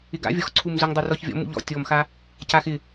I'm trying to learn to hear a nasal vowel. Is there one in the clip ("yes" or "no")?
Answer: no